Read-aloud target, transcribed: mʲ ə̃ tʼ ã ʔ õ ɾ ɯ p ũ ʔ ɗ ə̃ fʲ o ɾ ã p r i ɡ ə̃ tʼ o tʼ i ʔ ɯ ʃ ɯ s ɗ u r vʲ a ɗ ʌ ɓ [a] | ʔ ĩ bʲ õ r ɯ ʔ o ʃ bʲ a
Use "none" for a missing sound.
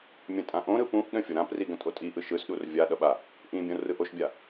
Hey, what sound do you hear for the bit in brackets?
a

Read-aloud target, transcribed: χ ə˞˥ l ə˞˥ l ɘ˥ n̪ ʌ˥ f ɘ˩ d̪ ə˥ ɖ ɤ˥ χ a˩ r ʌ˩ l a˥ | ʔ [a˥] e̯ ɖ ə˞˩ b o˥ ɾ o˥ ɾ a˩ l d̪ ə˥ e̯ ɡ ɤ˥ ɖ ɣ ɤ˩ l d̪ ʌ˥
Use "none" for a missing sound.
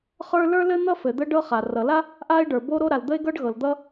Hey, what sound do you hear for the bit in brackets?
a˥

